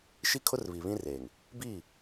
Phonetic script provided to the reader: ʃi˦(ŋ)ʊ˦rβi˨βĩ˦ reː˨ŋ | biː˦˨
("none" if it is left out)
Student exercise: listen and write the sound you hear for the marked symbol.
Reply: kʰ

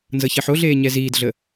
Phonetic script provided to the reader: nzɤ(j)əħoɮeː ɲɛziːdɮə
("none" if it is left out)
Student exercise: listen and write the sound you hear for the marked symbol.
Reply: ç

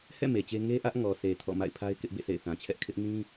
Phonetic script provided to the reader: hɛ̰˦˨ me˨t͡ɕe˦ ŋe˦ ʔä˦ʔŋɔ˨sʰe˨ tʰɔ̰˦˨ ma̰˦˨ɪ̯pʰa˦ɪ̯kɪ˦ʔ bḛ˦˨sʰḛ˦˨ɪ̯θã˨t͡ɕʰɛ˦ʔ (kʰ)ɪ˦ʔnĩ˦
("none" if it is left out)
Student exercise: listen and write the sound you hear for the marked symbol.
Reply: kʰ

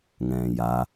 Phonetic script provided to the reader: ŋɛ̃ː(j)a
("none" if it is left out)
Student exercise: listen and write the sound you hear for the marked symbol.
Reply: j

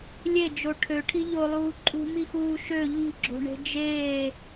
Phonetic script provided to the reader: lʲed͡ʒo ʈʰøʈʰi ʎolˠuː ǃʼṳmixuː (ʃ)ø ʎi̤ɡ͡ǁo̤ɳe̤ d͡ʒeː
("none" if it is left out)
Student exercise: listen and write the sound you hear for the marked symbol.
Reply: ʃ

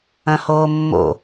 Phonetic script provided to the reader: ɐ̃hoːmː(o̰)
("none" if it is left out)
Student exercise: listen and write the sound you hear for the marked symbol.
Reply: o̰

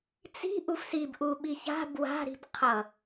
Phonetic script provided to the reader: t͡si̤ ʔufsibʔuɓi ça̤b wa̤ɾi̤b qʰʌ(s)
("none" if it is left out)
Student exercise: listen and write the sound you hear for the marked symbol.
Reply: none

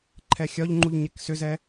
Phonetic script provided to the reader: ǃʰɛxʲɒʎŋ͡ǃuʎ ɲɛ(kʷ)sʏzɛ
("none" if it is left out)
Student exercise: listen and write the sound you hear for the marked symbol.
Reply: k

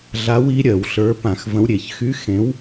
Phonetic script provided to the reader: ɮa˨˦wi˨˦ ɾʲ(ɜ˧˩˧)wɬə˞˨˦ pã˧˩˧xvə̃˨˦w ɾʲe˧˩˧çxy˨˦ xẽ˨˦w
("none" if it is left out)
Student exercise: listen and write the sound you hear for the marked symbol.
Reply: ɜ˧˩˧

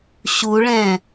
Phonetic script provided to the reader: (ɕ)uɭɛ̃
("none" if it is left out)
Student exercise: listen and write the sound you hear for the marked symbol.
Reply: ɕ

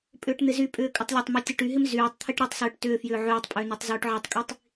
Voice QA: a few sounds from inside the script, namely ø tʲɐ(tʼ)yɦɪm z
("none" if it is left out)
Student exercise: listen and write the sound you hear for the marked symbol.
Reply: ʈ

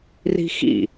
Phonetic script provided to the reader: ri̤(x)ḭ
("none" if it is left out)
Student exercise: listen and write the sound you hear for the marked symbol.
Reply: x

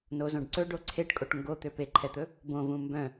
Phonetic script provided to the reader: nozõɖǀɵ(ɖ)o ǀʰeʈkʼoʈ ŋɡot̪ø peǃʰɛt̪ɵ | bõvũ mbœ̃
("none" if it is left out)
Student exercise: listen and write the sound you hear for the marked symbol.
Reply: ɖ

